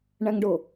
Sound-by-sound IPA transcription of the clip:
ɳ æ ŋ ɖ ʊ

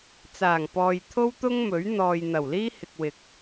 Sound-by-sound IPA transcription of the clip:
t͡s aː˨˩ ŋ p ɔː˨ j t̪ʰ o˥ w t̪ ʊ˥ ŋ m ɵ˨˥ ɥ n̪ ɔː˨ j n̪ ɐ˨˩ w l iː˥ h ɪ˨ k̚ w ɪ˨ k̚

